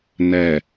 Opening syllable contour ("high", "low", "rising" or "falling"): low